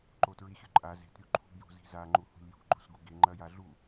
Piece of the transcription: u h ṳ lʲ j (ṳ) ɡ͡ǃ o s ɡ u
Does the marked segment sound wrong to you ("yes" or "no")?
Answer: no